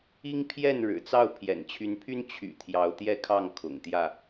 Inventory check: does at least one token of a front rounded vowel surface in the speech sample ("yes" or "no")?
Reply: yes